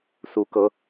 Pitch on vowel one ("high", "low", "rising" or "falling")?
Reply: rising